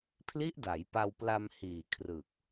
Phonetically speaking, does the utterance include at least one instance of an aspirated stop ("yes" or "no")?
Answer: yes